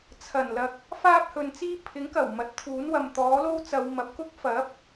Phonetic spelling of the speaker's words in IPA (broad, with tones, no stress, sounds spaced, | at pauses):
t͡sʰ ɐ˨˩ n l ɐ˨ k̚ | f aː˥ p̚ h ɵ˨ n t͡s iː˥ pʰ ɪ˨˥ ŋ k ɐ˨˩ w m ɐ˨˥ t̚ t̪ʰ uː˨˥ n w ɐ˨ m t̪ ɔː˨˥ l o˥ w t͡s ɐ˨˧ w m ɐ˨ p̚ k ʊ˥ k̚ f ɐ˨˥ p̚